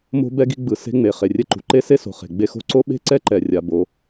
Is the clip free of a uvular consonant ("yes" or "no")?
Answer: no